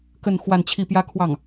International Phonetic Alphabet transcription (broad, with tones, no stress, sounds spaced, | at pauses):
k ə˥˧ n x w a˥˧ n t͡ɕʰ i˥˩ p j ä˥ kʰ w ɑ˥˩ ŋ